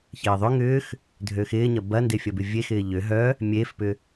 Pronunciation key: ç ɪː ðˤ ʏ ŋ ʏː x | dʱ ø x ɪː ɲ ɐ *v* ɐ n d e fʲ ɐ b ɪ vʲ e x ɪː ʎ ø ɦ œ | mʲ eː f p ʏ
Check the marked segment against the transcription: incorrect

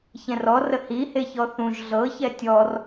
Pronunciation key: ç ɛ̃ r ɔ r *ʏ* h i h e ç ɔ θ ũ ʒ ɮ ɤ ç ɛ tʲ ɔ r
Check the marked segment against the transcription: incorrect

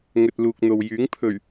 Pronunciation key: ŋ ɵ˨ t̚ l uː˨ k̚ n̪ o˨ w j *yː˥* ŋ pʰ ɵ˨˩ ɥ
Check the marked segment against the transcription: incorrect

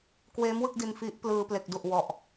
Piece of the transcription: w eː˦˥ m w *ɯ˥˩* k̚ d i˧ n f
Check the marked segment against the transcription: correct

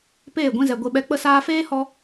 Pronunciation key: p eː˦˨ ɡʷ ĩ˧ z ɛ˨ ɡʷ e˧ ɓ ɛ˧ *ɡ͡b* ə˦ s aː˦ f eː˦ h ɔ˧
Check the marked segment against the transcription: incorrect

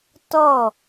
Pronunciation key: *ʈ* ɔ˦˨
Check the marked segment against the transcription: incorrect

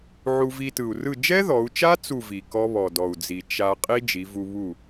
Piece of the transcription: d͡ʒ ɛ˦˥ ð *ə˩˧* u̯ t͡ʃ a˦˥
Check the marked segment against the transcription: incorrect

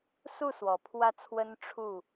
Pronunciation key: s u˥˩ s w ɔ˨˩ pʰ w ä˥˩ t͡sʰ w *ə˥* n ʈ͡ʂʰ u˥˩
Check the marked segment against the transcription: correct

